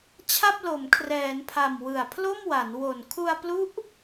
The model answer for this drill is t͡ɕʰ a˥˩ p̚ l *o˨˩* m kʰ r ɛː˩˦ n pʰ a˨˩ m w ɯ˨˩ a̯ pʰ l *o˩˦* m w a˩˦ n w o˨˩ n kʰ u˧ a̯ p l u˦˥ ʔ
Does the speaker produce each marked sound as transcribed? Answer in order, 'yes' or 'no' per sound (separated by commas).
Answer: no, no